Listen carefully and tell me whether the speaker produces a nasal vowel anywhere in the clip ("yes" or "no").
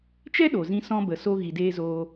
yes